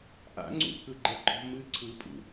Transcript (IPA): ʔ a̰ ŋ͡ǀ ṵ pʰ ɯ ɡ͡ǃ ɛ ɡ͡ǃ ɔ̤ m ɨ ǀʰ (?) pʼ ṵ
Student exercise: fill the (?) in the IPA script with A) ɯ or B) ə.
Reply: A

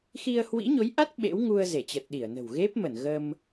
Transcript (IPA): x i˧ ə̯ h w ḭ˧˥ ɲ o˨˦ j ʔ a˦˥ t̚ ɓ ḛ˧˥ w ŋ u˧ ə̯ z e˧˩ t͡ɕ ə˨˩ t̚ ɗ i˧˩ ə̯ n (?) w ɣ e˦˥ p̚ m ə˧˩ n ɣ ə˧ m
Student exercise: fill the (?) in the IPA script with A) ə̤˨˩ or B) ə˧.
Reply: A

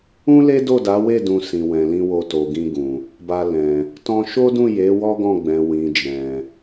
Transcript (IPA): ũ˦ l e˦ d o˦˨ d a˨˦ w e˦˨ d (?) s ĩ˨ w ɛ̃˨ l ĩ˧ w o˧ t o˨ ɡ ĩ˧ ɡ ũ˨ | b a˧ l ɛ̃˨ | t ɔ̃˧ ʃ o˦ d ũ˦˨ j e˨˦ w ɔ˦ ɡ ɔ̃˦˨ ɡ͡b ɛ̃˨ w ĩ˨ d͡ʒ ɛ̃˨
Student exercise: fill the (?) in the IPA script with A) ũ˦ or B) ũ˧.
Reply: B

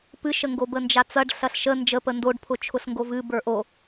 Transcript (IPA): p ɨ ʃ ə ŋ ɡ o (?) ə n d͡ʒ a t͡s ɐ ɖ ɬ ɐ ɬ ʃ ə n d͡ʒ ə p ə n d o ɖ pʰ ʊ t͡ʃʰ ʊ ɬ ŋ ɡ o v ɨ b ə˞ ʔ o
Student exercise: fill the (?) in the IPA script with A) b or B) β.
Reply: A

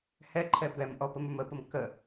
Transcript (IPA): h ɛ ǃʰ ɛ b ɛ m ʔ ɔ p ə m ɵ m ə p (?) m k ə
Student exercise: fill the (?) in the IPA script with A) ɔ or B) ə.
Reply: B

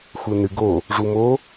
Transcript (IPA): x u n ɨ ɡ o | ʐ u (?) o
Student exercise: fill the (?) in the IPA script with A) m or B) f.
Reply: A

